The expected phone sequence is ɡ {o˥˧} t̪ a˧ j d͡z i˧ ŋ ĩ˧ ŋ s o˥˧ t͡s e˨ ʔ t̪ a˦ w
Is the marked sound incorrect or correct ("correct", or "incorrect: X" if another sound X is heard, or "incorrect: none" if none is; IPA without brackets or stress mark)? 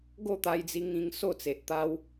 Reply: correct